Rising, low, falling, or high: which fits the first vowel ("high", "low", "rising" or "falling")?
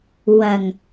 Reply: low